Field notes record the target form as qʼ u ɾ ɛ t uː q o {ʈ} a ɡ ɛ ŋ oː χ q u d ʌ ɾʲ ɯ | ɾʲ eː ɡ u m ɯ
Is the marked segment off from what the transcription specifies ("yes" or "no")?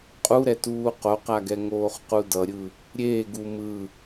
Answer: yes